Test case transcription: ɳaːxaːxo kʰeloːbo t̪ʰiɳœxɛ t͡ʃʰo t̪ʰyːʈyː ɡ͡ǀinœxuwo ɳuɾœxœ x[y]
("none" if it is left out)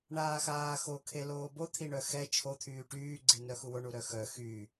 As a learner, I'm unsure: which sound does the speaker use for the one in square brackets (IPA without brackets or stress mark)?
y